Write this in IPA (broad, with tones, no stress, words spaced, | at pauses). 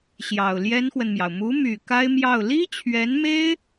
ɕjɑ˨˩ʊ̯ljɛ˥nxwə˨nmjɑ˩ʊ̯ mu˧˥my˨˩ ka˥ɪ̯mjɑ˥˩ʊ̯ li˥t͡ɕʰɥɛ˧˥nme˥ɪ̯